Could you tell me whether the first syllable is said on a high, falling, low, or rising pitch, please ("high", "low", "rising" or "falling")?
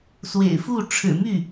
low